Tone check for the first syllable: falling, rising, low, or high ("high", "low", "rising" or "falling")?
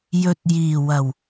low